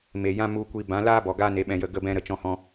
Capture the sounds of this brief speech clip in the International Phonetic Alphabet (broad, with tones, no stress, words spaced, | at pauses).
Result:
me˨jã˦mu˧kʷi˧ bã˨˦ laː˦bɔ˨ ɡaː˦ne˨˦ɓɛ̃˧jə˦˨ ɡə˦bɛ̃˦ɾə˧ t͡ʃɔ̃˦hɔ̃˦